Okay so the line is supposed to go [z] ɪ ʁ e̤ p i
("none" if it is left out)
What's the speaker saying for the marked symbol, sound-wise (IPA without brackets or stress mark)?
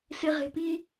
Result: s